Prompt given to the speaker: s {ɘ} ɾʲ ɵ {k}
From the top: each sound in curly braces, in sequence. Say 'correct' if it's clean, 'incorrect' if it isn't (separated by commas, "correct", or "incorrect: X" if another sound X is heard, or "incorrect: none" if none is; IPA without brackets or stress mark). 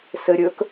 correct, correct